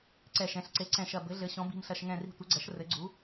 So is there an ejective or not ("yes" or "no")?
no